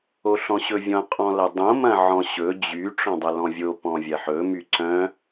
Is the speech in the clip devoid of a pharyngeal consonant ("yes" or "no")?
no